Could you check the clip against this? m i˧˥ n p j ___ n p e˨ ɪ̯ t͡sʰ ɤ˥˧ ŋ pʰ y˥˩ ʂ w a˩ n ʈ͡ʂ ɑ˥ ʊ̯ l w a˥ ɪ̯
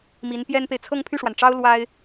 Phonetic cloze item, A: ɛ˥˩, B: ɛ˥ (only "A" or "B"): B